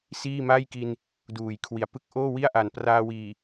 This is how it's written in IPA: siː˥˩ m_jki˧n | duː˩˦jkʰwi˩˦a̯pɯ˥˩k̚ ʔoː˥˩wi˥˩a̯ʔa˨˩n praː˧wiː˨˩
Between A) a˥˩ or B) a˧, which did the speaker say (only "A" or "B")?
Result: A